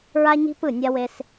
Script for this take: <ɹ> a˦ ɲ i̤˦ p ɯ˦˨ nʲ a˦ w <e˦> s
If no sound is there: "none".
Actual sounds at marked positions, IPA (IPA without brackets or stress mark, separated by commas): ɹ, e˦